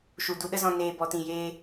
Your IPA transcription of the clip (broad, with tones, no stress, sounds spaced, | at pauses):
ʃ u˨ d u˧ ɗ ə˦ z ɔ̃˧ n eː˨ b ɔ˨ t ĩ˨ j eː˧